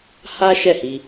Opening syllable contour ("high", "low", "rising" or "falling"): high